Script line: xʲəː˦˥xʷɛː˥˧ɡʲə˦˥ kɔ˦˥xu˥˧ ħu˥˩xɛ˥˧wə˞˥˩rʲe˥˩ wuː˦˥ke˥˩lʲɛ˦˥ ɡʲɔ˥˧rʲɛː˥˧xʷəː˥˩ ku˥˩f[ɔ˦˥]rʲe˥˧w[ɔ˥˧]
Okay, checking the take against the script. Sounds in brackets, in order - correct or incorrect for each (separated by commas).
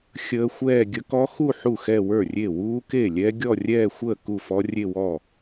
correct, incorrect